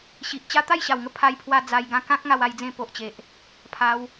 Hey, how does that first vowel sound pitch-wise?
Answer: low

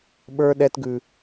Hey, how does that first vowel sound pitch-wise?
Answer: high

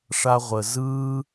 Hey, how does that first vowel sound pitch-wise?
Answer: high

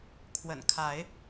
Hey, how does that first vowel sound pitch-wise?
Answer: low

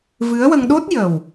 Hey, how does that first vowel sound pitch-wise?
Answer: rising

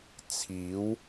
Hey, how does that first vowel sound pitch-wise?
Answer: rising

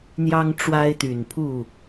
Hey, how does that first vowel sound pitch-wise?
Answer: high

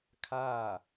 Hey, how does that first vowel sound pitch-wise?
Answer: falling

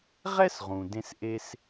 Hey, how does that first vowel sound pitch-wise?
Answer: high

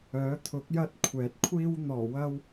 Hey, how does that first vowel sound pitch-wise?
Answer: rising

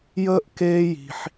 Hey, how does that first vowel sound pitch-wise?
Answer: high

